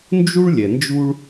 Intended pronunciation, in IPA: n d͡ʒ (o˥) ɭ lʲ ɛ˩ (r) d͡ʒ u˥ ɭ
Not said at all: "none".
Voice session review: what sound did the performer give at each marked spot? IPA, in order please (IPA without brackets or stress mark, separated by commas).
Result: u˥, n